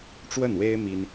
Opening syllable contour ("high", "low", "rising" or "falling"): falling